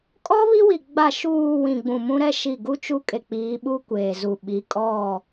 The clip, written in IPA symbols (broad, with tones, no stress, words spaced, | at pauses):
kʼɔ˦ βi˦wi˨ ɡ͡ba˨ʃuː˨ wĩ˨ɡ͡bũ˨ mũ˦ɾɛ˦ ʃi˦˨ ɡu˦t͡ʃu˦ kʼe˨k͡piː˨˦ ɓu˦ kʷeː˨zu˨ɓi˨˦ kʼɔ˦˨